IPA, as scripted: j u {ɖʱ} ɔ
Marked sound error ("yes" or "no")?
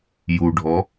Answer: no